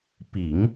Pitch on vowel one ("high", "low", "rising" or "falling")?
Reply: low